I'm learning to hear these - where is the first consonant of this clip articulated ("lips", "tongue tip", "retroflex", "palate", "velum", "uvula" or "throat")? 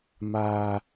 lips